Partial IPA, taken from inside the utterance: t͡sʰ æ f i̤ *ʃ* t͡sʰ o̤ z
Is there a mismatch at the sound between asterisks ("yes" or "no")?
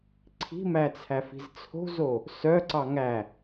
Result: yes